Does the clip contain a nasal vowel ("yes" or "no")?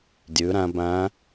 yes